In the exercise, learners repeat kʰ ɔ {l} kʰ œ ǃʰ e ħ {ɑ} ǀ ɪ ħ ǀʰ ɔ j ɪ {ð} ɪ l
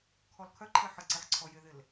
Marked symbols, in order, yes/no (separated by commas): yes, no, yes